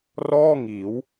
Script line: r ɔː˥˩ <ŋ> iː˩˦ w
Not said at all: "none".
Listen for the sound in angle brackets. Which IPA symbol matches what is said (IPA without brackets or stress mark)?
ŋ